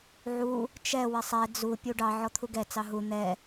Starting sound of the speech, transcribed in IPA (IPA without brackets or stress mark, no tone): ʕ